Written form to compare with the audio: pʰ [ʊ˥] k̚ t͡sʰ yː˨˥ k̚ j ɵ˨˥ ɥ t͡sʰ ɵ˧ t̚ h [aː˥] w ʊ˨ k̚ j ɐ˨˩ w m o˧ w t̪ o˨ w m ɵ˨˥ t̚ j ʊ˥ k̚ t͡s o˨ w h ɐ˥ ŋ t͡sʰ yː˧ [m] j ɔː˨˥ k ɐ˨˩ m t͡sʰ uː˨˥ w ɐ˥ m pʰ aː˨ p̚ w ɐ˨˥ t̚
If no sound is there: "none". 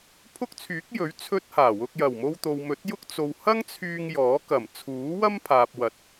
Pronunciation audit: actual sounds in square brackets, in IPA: ʊ˥, aː˨˩, ŋ

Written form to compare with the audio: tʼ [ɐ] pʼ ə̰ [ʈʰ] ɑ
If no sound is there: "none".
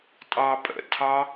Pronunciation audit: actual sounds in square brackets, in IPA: ɑ, tʰ

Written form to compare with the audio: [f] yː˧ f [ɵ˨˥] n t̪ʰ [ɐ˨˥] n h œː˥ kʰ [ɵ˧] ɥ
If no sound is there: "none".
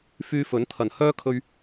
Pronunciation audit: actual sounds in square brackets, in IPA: f, ɵ˨˥, ɐ˨˩, ɵ˧

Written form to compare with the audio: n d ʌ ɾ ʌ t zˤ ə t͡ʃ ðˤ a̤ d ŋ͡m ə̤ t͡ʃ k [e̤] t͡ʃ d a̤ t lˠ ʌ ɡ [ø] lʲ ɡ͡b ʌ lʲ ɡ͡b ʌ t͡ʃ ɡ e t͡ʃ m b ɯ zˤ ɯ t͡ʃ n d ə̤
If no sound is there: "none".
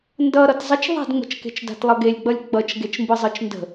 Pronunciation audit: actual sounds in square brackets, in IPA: e̤, e

